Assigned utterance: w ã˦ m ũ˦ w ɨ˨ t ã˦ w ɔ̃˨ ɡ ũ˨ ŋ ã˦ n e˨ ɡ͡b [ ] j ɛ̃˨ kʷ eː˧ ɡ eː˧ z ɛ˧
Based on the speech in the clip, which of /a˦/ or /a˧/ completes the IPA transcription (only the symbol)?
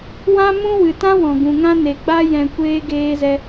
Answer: a˦